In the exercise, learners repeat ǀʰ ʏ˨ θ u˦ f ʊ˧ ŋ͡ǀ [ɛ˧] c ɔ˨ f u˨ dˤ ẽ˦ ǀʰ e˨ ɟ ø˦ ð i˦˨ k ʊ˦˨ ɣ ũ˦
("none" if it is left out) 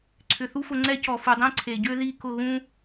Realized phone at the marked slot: ɛ˦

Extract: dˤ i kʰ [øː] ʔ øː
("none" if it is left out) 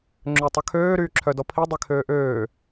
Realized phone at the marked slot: øː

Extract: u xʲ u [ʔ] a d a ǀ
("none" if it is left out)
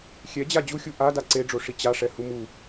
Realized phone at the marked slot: ʔ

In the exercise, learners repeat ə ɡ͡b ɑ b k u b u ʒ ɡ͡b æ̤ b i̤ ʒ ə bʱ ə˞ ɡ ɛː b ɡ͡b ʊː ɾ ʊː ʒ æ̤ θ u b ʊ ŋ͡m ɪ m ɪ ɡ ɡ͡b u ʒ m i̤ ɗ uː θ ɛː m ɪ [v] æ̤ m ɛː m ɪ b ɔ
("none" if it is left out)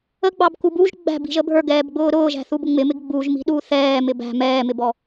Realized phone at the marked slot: b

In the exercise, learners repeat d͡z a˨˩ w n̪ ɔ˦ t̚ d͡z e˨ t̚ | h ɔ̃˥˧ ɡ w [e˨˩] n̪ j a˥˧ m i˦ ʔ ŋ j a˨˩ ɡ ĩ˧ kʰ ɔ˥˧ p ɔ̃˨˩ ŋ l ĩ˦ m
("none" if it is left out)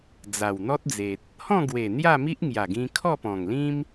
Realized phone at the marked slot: e˨˩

